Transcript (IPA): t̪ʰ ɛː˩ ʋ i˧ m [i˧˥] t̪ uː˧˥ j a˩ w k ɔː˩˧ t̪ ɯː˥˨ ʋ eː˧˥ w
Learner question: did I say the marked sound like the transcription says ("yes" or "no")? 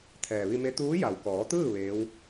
no